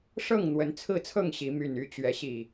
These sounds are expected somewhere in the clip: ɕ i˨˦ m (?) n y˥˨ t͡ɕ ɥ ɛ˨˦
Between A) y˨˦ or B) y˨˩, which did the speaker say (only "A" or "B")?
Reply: B